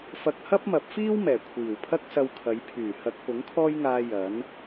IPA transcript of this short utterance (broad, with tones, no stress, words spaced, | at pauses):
fɐ˧k̚hɐ˥p̚mɐ˨˥p̚fiː˥w mɛː˨˩kʷʰiː˨˩w pʰɐ˥k̚sɐ˧wkʰɐ˨˧jpʰyː˨˩ hɐ˧k̚pʊ˨˥ŋkʰɔː˥jŋaː˧ jɐ˨˥n